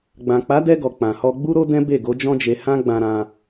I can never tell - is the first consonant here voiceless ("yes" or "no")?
no